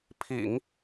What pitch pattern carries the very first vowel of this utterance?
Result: low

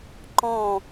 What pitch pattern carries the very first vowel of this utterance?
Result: falling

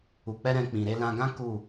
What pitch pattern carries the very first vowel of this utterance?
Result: low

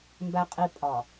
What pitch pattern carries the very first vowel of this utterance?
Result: low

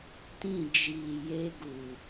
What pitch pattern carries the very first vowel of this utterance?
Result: falling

